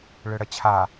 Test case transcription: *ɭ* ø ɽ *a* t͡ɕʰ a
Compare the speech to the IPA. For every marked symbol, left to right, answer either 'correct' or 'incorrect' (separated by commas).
correct, incorrect